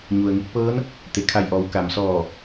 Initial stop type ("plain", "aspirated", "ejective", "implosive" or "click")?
plain